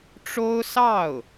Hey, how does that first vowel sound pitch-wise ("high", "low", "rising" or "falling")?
high